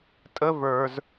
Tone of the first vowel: high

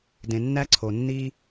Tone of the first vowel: low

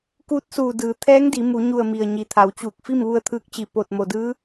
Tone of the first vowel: rising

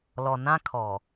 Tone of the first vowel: low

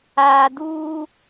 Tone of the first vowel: low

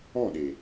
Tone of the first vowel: falling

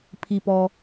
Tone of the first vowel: low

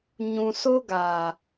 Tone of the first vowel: low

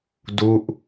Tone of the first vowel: falling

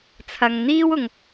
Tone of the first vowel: low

